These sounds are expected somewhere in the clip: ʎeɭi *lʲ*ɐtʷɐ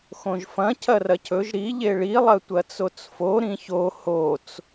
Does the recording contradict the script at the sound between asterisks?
yes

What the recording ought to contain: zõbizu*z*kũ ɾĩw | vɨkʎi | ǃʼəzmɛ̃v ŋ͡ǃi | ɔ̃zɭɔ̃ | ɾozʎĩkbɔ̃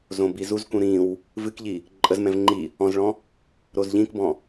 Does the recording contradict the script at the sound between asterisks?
no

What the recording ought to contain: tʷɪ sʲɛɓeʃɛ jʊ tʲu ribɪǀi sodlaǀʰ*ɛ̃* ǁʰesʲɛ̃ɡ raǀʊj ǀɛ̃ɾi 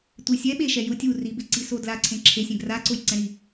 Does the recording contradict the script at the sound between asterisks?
yes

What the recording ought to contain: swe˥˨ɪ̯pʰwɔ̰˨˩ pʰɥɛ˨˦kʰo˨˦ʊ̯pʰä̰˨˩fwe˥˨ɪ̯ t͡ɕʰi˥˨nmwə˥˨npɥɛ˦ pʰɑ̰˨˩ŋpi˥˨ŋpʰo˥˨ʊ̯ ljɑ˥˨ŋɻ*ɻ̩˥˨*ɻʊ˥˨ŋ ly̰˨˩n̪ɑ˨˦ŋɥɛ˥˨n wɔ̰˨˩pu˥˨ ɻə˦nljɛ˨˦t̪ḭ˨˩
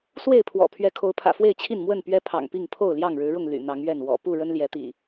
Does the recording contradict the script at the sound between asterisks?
yes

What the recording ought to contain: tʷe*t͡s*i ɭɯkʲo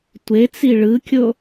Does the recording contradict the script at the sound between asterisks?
no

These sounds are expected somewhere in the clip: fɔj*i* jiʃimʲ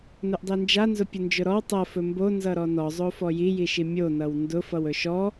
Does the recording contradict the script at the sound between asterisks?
no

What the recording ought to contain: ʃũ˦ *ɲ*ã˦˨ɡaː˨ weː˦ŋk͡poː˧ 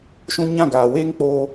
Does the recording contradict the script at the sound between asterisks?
no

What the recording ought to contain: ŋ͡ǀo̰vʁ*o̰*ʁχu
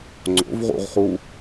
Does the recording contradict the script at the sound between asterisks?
yes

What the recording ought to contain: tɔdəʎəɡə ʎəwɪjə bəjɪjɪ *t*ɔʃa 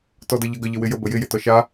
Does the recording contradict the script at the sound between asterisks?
no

